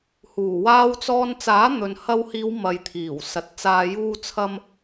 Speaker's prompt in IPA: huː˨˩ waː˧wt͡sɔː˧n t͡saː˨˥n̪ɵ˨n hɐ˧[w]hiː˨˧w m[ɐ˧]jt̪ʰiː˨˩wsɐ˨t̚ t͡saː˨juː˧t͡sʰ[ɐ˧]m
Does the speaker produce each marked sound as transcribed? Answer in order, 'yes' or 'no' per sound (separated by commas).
yes, no, yes